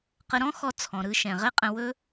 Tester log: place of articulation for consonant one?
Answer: uvular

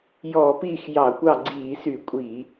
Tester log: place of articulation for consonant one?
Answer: palatal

